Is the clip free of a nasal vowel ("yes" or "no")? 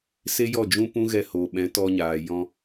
no